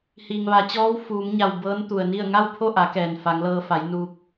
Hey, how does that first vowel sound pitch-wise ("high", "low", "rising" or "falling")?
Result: low